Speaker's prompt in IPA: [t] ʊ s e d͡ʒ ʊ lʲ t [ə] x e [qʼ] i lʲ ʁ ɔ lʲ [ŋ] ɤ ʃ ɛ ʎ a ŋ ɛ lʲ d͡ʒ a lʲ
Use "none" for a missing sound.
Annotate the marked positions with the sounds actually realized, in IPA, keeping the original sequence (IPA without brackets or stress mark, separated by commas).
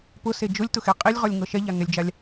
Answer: p, ʊ, qʼ, ŋ